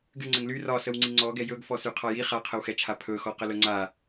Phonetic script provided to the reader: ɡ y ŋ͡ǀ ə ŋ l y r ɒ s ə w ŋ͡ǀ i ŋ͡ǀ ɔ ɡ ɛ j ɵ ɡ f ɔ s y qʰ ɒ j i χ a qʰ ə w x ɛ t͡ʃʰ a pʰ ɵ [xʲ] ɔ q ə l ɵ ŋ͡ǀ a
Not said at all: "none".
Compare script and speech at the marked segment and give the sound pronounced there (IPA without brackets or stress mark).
x